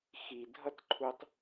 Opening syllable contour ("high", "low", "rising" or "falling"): low